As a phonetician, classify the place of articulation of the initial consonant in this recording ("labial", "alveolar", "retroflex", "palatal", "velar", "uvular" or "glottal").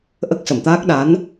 glottal